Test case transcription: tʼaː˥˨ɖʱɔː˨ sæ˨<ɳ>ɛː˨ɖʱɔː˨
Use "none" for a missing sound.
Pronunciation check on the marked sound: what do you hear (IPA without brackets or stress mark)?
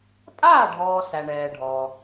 ɳ